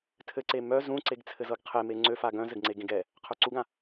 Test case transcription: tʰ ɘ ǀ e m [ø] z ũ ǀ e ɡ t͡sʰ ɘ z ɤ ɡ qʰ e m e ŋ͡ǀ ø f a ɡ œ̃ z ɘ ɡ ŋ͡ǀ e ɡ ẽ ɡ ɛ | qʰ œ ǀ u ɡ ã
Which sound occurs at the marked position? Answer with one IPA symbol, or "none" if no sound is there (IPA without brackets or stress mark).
œ